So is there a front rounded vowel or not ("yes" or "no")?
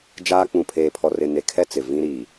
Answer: no